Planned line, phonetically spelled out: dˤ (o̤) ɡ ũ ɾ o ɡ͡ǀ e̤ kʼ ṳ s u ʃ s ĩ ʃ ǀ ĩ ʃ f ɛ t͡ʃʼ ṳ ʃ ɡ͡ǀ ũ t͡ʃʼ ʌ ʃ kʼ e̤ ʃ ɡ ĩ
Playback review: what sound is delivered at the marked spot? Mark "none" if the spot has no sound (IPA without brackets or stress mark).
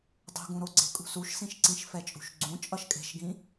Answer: o̤